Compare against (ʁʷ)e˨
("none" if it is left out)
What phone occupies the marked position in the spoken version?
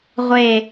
ʁʷ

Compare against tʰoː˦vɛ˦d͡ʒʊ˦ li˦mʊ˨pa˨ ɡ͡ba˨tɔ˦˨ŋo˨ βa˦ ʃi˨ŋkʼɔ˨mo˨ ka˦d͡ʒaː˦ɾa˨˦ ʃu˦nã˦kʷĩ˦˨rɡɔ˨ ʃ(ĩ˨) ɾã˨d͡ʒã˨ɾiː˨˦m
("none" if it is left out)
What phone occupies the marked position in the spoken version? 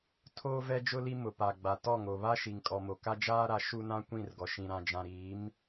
ĩ˨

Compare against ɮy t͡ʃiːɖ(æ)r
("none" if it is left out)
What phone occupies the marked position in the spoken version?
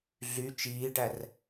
æ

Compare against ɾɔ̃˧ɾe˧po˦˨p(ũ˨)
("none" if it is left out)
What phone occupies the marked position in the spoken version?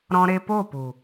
u˨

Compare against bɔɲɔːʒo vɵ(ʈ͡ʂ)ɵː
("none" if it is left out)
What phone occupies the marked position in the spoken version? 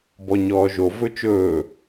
t͡ʃ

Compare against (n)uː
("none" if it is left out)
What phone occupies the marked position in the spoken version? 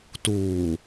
t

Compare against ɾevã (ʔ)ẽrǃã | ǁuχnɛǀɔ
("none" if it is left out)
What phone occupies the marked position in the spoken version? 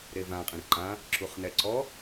qʼ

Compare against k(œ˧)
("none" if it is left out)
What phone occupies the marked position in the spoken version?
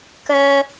œ˧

